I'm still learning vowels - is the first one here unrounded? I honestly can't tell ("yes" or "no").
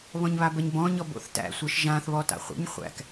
no